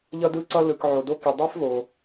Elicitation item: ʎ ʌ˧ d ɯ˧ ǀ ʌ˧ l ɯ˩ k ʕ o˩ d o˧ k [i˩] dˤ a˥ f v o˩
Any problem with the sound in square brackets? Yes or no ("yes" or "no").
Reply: no